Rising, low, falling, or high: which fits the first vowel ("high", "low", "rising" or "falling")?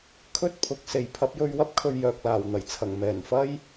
high